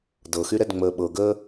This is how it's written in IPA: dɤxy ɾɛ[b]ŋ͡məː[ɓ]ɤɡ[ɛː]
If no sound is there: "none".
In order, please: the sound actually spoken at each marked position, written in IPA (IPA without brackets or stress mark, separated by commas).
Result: d, ɓ, əː